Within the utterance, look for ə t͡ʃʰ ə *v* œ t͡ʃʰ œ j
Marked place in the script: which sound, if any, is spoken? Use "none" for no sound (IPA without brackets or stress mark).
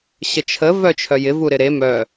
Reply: v